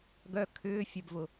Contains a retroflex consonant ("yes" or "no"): no